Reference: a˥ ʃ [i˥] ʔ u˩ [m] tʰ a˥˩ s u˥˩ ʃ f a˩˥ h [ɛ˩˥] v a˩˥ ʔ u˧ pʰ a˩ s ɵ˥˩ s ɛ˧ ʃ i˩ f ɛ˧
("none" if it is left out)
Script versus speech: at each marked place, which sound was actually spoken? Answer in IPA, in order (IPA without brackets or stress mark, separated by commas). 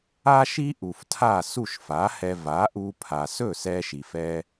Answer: i˥, f, ɛ˧